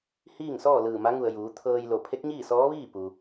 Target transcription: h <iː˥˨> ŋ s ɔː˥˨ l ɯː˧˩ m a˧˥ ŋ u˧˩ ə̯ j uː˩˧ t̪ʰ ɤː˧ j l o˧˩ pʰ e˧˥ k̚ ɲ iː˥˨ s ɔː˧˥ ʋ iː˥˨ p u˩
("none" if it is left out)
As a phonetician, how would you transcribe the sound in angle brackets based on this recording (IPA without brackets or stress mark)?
iː˥˨